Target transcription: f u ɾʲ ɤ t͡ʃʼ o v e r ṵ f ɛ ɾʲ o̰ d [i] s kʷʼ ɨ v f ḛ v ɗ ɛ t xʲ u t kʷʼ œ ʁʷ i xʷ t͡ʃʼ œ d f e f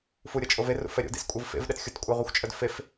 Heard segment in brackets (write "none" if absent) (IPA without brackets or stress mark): ḭ